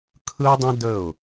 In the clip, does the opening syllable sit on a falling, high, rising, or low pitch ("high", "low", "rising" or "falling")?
high